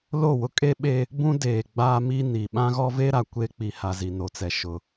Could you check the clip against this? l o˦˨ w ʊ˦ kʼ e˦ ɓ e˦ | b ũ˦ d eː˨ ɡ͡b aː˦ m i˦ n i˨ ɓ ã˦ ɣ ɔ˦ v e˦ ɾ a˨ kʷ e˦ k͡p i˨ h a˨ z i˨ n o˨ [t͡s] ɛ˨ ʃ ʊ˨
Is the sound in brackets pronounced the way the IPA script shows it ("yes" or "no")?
yes